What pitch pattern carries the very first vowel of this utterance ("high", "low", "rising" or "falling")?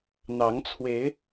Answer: rising